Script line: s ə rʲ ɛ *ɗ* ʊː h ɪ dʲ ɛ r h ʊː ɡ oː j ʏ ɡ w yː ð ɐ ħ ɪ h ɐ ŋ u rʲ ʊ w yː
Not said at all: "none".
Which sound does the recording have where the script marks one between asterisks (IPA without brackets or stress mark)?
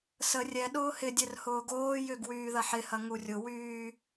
ɗ